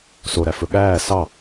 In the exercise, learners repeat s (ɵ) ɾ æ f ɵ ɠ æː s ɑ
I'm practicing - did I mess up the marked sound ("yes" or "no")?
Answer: yes